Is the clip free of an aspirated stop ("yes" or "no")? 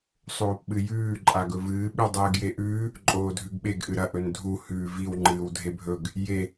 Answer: yes